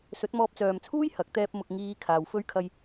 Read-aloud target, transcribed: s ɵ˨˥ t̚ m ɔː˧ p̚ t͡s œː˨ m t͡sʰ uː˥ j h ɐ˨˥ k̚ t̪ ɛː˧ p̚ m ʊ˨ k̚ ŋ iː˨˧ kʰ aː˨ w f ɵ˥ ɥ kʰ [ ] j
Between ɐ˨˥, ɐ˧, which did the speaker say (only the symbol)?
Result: ɐ˧